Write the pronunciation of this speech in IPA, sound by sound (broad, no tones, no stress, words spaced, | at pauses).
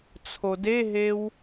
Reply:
t͡sʰodeɦew